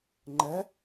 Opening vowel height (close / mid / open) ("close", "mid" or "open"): mid